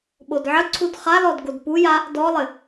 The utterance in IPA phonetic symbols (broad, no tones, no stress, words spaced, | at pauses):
ɓodʕəǀʰud χalɔd ɡodpuja | dɔlˠɘ